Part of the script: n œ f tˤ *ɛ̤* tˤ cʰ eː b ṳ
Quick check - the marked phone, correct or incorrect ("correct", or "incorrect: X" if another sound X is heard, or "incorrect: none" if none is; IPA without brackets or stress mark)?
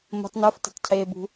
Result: correct